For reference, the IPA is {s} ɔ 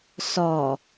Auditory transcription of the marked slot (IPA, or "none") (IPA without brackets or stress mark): s